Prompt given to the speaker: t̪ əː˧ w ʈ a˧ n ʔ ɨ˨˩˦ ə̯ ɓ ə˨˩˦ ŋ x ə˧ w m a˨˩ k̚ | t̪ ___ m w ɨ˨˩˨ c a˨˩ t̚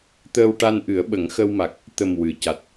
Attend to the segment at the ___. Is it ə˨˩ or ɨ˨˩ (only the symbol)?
ə˨˩